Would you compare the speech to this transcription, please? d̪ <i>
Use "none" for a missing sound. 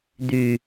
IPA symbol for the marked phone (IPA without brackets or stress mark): y